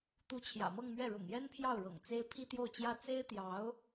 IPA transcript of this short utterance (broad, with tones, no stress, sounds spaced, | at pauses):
t̪ u˧˥ t͡ɕʰ j ä̰˨˩ m ɤ˥˧ ŋ m ɥ ɛ˥˩ ɻ ʊ̰˨˩ ŋ j ɛ˥ n pʰ j ɑ˥˩ ʊ̯ ɻ ɤ̰˨˩ ŋ t͡s e˥ ɪ̯ pʰ i˥ t̪ j o˥˩ ʊ̯ t͡ɕ j ä˥ t͡s e˥ ɪ̯ t̪ j ɑ˧˥ ʊ̯